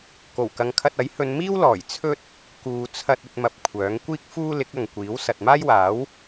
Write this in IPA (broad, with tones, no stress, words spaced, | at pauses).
ko˨˩wkɐ˨˧ŋkʰɐ˧t̚ɐ˨˥j hɵ˨˧nmiː˥w lɔː˨˩j t͡sʰɵ˥t̚ | kuː˨t͡sʰɐ˧t̚ ɵ˧t̚mɐ˨p̚ kʷʰœː˨˥ŋ kʷiː˥k̚ fuː˥lɪ˨˥k̚ ɐ˨ŋkʷiː˨˥w sɐ˨t̚maː˥jwaː˨˥w